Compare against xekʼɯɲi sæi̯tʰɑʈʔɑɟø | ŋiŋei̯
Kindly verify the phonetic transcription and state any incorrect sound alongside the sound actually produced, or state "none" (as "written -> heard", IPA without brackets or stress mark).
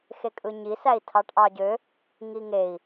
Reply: none